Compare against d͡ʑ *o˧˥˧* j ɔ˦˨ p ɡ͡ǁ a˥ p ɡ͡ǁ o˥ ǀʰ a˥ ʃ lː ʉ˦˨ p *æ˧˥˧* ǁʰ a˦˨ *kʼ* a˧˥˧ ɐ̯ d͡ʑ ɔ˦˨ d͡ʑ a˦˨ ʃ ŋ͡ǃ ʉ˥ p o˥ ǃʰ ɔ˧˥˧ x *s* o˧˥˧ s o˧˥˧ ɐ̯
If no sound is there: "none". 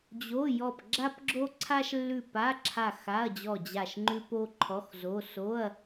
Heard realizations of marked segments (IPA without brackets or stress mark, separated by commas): o˧˥˧, a˧˥˧, x, z